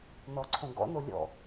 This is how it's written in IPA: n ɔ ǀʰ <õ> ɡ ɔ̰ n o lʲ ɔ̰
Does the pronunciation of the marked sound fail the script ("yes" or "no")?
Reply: no